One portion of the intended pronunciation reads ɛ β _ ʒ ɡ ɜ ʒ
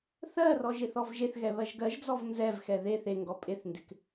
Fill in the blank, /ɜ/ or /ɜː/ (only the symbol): ɜ